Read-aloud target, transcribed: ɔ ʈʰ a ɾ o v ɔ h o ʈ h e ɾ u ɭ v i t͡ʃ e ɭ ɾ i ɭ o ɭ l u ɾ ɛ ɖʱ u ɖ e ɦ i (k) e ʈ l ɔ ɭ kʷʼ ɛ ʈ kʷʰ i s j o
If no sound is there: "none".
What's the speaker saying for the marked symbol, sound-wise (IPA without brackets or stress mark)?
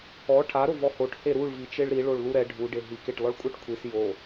k